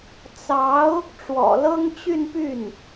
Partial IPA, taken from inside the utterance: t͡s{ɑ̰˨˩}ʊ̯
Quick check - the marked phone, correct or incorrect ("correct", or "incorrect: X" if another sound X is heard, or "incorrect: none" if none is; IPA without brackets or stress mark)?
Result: incorrect: ɑ˧˥